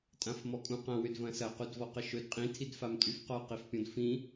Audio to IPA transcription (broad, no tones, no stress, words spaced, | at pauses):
tʼãfmɔkʼũqɐ̃ wʏdvɐ̃sɐ qudvɔqəʃɵd qʼĩ tʰidfamtʼyfqɔ qifpʲɔ̃dfĩ